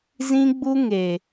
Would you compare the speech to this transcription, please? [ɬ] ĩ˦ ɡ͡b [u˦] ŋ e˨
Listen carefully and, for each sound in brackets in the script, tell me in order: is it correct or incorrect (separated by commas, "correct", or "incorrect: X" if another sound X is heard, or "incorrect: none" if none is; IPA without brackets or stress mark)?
incorrect: z, correct